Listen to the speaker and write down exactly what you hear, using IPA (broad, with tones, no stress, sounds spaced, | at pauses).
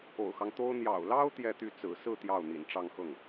o̰˨˩ ʊ̯ x ɑ˦ ŋ t̪ o˥ ʊ̯ n̪ j ɑ̰˨˩ ʊ̯ l ɑ˥ ʊ̯ t̪ j ɛ˥˧ t̪ y˥˩ t͡s ɹ̩˨˩ s ɹ̩˥˧ t̪ j ɑ˥˩ ʊ̯ n̪ ḭ˨˩ n ʈ͡ʂ ɑ˥˧ ŋ x ɤ˥˩ ŋ